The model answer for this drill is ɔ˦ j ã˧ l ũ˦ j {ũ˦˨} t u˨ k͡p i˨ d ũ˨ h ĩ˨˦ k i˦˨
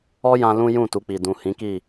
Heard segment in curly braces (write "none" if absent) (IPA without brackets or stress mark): ũ˦˨